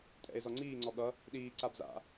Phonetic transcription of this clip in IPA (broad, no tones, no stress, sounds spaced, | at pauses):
tʼ ɛ̰ e̯ z ɔ ŋ͡ǀ iː ŋ͡ǀ ɔ ɠ ʌ | ɗ iː ǀ a b z a̰